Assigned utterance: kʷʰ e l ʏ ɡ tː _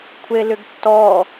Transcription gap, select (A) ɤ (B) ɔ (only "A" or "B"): B